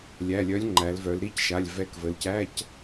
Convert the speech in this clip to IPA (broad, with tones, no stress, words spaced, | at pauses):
lʲæ˩˧˩lʲœ˨˥lʲŋ͡ǃæ˩˧lvœ˩˧l ɾi˧˥˧cʃa˩˧˩lʲ vɛ˨˥kvə˩˧lcæ˧˥˧c